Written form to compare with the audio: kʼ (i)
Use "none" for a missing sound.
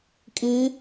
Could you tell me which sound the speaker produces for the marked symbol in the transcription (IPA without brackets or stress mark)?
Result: i